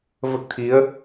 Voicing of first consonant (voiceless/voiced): voiced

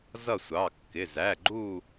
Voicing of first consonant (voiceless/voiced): voiced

